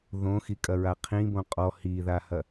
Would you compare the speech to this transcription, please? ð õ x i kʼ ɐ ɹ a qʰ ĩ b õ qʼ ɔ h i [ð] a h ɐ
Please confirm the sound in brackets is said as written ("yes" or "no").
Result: yes